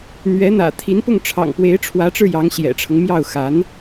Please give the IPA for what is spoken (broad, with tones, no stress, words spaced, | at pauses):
n̪ɥɛ˧˥n̪ä̰˨˩ t̪ʰi˧˥npʊ˥˩ŋʈ͡ʂʰɑ̰˨˩ŋ pwe˧˥ɪ̯ʈ͡ʂʰwä˧˥ʈ͡ʂɻ̩˧ jɑ˧˥ŋɕjɛ̰˨˩ʈ͡ʂʰɤ˦ŋmjɑ˥˩ʊ̯ xa˧˥n